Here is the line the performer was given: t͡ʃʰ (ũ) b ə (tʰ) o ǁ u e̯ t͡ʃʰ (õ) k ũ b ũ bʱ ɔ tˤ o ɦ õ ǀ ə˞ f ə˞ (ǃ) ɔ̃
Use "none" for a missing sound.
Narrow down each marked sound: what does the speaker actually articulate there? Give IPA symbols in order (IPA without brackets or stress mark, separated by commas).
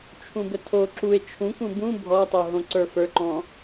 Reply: ũ, tʰ, ũ, ǃ